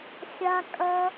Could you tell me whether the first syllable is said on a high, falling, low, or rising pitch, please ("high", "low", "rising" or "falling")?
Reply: high